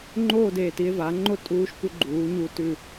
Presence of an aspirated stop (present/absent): absent